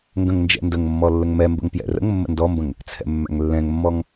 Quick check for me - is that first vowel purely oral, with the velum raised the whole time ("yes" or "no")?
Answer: no